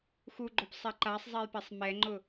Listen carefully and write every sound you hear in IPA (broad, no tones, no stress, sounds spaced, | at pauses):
x u ɡ͡ǃ o p sˤ e ǃ a sˤ zˤ e j p e sˤ m ɛ ŋ͡ǃ ʊ